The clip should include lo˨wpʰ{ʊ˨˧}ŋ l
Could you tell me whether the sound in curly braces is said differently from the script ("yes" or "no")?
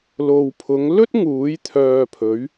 no